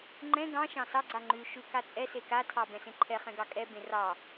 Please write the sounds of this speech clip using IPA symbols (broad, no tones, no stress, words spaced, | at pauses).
ŋ͡ǃɛ̃ ɡɑ̃ʃɑ̃ sɑɡ͡ǀa ŋ͡ǃʉ ʃʉkat͡sʼɛse katʰɑ bɛ̃sẽǃʰɛχɛ̃ ɡɑkʼɛbẽ rɑ